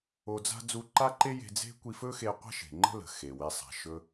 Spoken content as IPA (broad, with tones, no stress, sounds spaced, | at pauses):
o˧ d͡z a̤˥ d͡z u˧ ǃ a˥ ǃ e˥ j e̤˧ d͡z e̤˥ kʷ i˧ f ɵ˥ x e˧ qʷ a̤˥ ʃ e̤˩ ŋ͡ǃ ə̤˥ l ə̤˩ x e˩ w e˧ sˤ a̤˩ ʃ ɵ˧